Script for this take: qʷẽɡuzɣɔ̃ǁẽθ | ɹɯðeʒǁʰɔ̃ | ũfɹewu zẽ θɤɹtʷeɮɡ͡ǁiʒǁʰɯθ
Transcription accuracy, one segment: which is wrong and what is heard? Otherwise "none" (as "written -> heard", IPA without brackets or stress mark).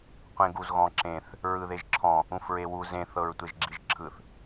ɮ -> ʒ